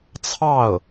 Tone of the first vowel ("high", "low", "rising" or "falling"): falling